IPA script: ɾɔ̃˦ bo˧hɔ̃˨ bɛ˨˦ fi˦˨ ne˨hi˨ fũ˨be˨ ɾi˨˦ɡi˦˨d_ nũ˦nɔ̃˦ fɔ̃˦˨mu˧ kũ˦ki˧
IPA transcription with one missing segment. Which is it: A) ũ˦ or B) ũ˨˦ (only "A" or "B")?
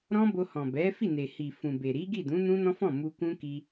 B